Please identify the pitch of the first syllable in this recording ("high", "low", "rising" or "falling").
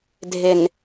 low